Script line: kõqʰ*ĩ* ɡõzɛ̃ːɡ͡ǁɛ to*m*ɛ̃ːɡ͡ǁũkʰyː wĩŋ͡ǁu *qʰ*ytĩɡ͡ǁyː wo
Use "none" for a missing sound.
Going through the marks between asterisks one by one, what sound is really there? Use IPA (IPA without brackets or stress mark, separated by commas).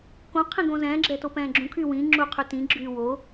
ĩ, p, qʰ